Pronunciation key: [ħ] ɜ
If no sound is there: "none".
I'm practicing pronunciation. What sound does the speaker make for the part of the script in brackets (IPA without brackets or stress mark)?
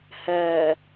h